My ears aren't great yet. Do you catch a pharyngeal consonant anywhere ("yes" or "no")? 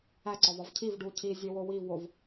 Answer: no